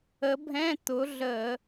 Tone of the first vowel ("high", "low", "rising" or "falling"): rising